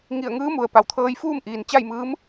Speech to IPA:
ŋ i˧˩ ə̯ ŋ ɯː˧˥ m u˩ ə̯ p a˩ w t̪ʰ ɤː˧ j f uː˥˨ m ʔ iː˩ n t͡ɕ a˥˨ j m ɯː˧˥ m

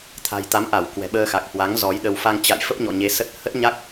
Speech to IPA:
t̪ʰ a̤˨˩ j t̪ a˨˦ m ʔ a˧˩ w k w ɛ̤˨˩ ɓ əː˧ x a˨˩ k̚ h w a˨˦ ŋ z ɔ˨˦ j ɗ ə˧ w f a˧ ŋ t͡ɕ a̰˧˨ j f ə˦˥ p̚ ɲ ɔ̰˧˨ ɲ e˨˦ s ə˦˥ t̚ h ə˦˥ t̚ ɲ a˦˥ k̚

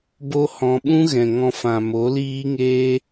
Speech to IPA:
b o˦ h ɔ̃˧ ɓ ũ˦ ɣ ɛ̃˨ ŋ ɔ̃˧ f ã˨ m o˨˦ l iː˦ ŋ eː˦

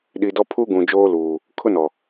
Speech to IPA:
ɗ i˨ d ɔ˦ pʰ u˦ ɡ ũ˨ d͡ʒ oː˦ l uː˨ | kʰ ʊ˦ n ɔ˨

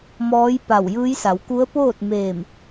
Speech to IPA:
m ɔː˧˥ j p a˧˩ w j ɯː˧˥ j s a˩˧ w k u˧˥ ə̯ p oː˥˨ t̚ m eː˧˩ m

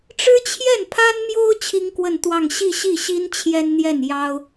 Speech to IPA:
ʈ͡ʂ ɻ̩˥ t͡ɕʰ j ɛ˥˩ n pʰ a˥ n m j o˥ ʊ̯ t͡ɕʰ i˥ ŋ k w ə˥˧ n t̪ w ɑ˥˧ ŋ ɕ i˥˧ ɕ i˥˩ ɕ i˥ n t͡ɕʰ j ɛ˥ n n̪ j ɛ˥˩ n j ɑ˥ ʊ̯

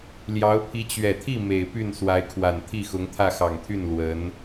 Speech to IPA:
l j ɑ˧˥ ʊ̯ pʰ i˧˥ t͡ɕ ɥ ɛ˨˩ t̪ʰ i˥˩ m e˨˩ ɪ̯ p y˥˩ n s w a˧˥ ɪ̯ kʰ w a˨˩ n t̪ʰ i˥˩ x ʊ˧˥ ŋ t̪ʰ ä˥˩ x ɑ˨˩ ŋ t̪ʰ y˥˩ n l w ə˧˥ n

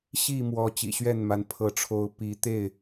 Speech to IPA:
ɕ i˥˨ m w ɔ˨˦ t͡ɕ ḭ˨˩ ɕ ɥ ɛ˥˨ n m a˨˦ n pʰ ɤ˨˦ ʈ͡ʂʰ o˨˦ ʊ̯ p i˨˦ t̪ e˥˨ ɪ̯

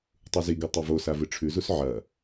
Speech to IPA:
tˤ u z i ɡ u tˤ e v o s a v ɨ ʈ͡ʂʰ ʉ z u s ʕ ɐ

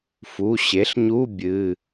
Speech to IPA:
f u˩˧˩ ɕ e˩˥ ɬ ɲ u˧˥˧ bʲ ɨ˩˧˩

